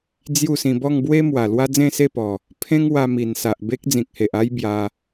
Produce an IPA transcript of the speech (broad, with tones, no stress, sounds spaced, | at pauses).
d͡z j u˥˧ s ĩ˧ b ɔ˥˧ ŋ b w e˦ m w a˨˩ l w a˦ d͡z ẽ˥˧ s e˥˧ p ɔ˨˩ | pʰ ẽ˦ ŋ w a˧ m i˨˩ n s a˨ ʔ b e˦ k̚ d͡z ĩ˨ k̚ h e˨ ʔ a˦ j b j a˧